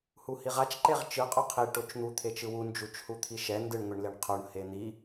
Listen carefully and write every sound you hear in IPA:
h u h i ʁ a t͡ʃ ǃ e ʁ t͡ʃ ɯ qʼ o qʰ i ʈ o t͡ʃ n̪ u t̪ʰ e t͡ʃ ɯ w u n d͡ʒ u t͡ʃ h u t̪ʰ i ʃ ɛ n d ɯ ɳ ŋʷ i ɳ l e ɳ qʰ o ɳ h e n̪ i

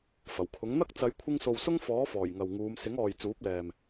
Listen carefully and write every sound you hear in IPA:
f ɐ˨˩ w kʰ ʊ˨˥ ŋ n̪ ɐ˥ k̚ t͡s ɐ˨˧ j kʷʰ ɪ˧ ŋ s o˨ w s ʊ˥ ŋ f ɔː˨˥ f ɔː˨˩ j ŋ ɐ˨ w ŋ uː˨˧ m s ɪ˨˥ ŋ ɔː˨ j t͡s uː˨˥ p̚ l ɛː˨ m

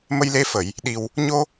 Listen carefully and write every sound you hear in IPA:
m ə˧ j l e˧ f ə˨˩˨ j | ɗ i˨˩ w | ɲ o˧

